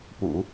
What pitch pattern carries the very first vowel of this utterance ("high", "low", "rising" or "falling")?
low